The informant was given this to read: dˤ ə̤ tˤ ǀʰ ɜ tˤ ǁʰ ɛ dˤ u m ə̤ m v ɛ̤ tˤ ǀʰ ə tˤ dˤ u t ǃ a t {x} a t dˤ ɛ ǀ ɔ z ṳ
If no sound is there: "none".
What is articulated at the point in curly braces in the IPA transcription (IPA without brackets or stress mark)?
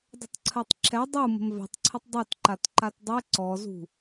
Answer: ǃ